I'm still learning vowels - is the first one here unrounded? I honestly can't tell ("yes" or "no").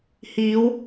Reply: yes